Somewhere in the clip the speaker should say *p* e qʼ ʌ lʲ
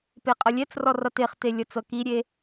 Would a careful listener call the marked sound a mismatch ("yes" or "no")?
no